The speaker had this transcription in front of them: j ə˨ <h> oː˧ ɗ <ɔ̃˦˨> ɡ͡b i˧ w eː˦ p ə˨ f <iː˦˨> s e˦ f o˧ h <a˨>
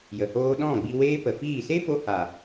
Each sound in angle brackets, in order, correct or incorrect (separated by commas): correct, correct, correct, correct